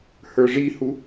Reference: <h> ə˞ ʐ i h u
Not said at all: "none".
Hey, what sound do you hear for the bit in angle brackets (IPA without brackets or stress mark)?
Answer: h